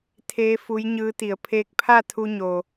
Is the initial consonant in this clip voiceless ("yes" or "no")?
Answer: yes